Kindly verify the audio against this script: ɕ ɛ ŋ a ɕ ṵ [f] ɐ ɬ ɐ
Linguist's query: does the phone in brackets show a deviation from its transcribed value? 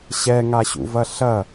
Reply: yes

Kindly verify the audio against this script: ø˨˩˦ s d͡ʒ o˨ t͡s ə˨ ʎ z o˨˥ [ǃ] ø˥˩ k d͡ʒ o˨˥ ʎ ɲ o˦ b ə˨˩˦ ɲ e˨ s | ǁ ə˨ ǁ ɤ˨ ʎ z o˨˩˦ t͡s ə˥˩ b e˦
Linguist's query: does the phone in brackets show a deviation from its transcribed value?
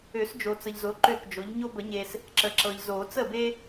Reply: no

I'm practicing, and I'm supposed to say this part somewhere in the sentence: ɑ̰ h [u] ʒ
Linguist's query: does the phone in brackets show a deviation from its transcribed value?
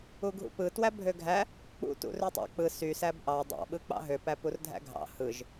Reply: yes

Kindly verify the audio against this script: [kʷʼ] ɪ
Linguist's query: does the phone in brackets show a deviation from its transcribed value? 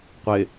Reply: yes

